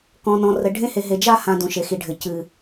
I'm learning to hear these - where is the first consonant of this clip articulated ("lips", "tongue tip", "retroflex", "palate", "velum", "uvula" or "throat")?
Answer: velum